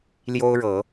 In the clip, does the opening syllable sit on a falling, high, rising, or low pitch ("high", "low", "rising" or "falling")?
high